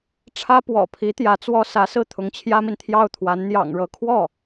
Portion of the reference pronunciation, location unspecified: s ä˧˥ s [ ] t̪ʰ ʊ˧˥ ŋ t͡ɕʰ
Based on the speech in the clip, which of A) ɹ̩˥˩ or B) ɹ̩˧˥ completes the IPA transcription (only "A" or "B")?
A